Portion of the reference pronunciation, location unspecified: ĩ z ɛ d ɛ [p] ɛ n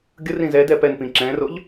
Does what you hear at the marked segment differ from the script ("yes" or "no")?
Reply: no